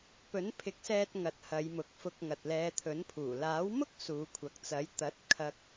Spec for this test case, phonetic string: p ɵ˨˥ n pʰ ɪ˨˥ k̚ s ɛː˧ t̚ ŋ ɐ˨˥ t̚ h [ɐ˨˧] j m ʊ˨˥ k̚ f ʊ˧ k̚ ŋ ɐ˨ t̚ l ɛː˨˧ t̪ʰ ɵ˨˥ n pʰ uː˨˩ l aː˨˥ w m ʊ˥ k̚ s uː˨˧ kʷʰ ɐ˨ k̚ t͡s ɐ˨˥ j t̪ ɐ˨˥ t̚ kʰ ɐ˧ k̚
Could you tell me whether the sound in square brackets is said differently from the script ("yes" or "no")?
no